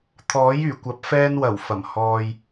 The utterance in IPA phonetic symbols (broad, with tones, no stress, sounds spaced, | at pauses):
t̪ʰ ɔː˨˥ j yː˨˩ kʷ ɐ˨˥ p̚ f ɛː˧ n w ɐ˨˩ w f ɐ˨˩ m h ɔː˨ j